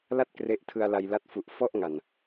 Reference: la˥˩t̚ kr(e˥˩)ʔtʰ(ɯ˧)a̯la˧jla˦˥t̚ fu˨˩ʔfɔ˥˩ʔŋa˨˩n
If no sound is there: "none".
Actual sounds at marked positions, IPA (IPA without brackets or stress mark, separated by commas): e˦˥, ɯ˧